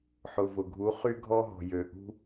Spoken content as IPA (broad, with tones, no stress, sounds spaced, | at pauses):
ħ ʊ˨ v ʊ˨ ɡʱ u˧˥ χ y˥ ɡʱ ɔ˥ ɦ ɔ̤˨ j ø˨ ʔ ṳ˥